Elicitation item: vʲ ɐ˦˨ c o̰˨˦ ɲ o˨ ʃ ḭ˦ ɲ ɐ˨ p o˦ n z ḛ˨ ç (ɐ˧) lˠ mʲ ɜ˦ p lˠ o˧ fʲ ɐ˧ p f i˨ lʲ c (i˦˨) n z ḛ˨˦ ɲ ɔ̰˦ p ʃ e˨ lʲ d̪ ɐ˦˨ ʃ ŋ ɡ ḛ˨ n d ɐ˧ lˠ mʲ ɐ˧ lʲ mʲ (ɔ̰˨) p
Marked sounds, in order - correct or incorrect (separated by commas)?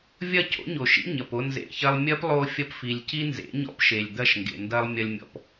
correct, incorrect, correct